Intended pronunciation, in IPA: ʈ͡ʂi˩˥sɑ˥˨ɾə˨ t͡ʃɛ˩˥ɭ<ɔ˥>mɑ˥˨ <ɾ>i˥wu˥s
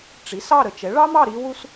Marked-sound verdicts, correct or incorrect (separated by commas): incorrect, correct